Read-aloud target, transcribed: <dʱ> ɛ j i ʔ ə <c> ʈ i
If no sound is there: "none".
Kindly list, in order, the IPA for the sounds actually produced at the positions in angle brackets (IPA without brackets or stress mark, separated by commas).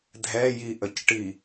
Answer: dʱ, c